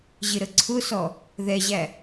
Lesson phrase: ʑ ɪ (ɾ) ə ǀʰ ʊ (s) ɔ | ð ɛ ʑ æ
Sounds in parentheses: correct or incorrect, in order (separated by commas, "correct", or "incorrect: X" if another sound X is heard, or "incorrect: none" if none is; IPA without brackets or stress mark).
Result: correct, correct